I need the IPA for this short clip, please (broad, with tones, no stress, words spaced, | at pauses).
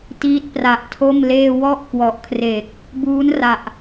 tiː˦˥t̚pra˨˩ʔtʰo˥˩mleː˥˩ wɔ˥˩ʔkwɔ˨˩ʔkʰre˨˩k̚ | buː˦˥nra˨˩ʔ